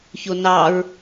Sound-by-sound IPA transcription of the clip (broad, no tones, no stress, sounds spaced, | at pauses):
ç o n ɑ ɹ